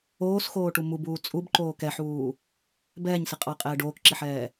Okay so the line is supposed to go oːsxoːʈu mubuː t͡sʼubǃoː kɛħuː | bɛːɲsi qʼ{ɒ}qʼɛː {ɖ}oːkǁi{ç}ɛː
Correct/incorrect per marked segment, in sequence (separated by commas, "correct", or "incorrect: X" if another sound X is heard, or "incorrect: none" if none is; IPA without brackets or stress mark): incorrect: ɑ, correct, incorrect: ħ